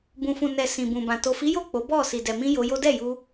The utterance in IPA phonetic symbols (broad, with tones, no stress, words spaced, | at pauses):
bũ˨fũ˨nɛ˨ sĩ˨bũ˨bã˨ to˨fi˨˦jo˦˨ k͡po˨˦ bɔ˦˨ si˨dɛ˨mĩ˧ jo˧jo˦ dɛ˦˨ju˧